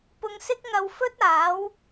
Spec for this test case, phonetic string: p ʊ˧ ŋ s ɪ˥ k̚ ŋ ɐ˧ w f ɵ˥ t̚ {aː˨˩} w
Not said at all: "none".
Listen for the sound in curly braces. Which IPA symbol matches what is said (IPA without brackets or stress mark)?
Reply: aː˨˥